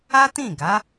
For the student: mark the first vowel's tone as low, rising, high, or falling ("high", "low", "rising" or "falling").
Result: high